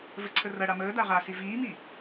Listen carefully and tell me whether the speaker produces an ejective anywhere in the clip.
no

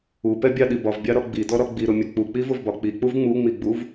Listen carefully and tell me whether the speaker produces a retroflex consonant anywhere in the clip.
no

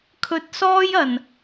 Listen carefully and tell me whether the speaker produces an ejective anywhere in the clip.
no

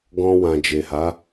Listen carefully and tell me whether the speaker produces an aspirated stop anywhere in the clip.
no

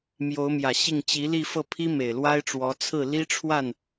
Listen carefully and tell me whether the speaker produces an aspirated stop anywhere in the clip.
yes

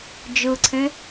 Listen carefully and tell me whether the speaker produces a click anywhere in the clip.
yes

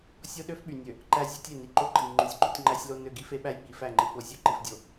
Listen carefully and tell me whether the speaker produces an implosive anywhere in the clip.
yes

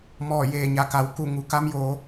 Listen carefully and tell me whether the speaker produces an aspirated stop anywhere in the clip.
no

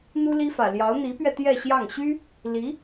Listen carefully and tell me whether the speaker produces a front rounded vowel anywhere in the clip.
yes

